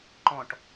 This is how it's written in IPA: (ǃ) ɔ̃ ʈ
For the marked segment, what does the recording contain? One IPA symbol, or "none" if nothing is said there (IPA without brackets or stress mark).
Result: ǃ